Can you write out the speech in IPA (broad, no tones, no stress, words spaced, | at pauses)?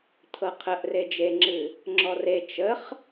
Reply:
t̪ʰɤqʰəʔ red͡ʒeŋ͡ǁɨ | ŋ͡ǁɔre t͡ʃəχ